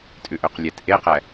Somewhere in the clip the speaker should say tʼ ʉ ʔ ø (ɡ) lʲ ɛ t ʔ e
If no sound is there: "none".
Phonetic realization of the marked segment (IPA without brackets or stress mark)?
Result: q